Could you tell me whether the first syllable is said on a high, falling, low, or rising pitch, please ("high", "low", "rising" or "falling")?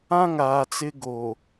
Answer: high